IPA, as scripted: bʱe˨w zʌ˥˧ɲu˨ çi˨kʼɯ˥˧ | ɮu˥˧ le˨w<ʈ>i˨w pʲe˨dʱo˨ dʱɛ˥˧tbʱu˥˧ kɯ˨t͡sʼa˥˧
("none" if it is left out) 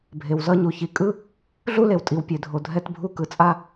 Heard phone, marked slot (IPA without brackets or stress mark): tʼ